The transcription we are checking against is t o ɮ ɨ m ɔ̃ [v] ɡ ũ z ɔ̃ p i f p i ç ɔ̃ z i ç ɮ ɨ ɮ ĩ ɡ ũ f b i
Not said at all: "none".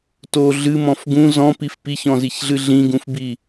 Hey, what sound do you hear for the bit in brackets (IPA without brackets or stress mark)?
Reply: f